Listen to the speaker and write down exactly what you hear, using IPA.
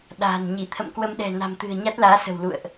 ɗa̤ː˨˩n ɲi˧˩t̪ʰə̰˧˨mkwə˧mɗɛ̤˨˩ na̤˨˩mt̪ɨ̤˨˩ə̯ ɲa˦˥t̚laː˨˦sə̤˨˩w lṵ˧˨ə̯ʔ

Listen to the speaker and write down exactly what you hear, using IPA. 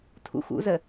tʰṵxṵzə

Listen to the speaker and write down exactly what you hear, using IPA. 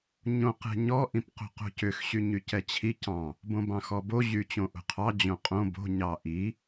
ɲõqɛ̤ɲɔ ʔĩpqo̤qo̤cʏx ɕyɲycɛt͡ɕʰi cɑ̃ | bõbɑ̃xɔbo ʑyt͡ɕõʔo̤qʰɑ d͡ʑõqʼõ bo̤ ɲɑʔi

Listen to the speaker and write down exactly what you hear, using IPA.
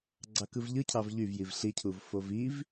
ɡ͡ǀɑkɯvʎɯ cʰɑvʎyvjiv ɬicʰuv foviv

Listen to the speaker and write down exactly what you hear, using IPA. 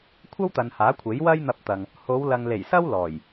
kʷʰɐ˥wt̪ɐ˨nhaː˨˥ kʷʰe˨˥j wɐ˥jn̪ɐ˧p̚t̪ɐ˨ŋ | ho˨˧wlɐ˨ŋle˨˩jsɐ˥w lɔː˨˩j

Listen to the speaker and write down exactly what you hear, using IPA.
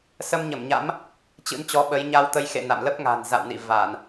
sə˧mɲə˧˩mɲa̰˧˥m | t͡ɕɨ̰˧˥nt͡ɕɔ˨˦ɓə˨˦j ɲa˧wt̪ə˧j xḛ˧˨ na̰˧˨mlə˦˥p̚ ŋa̤˨˩nza̰˧˨wnḭ˧˨ va˧˩˨n

